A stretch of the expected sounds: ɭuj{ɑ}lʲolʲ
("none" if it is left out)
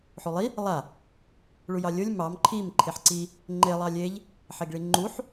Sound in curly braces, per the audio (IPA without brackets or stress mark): ɑ